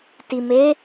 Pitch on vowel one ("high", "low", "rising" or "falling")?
low